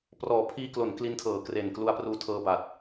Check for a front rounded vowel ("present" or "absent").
absent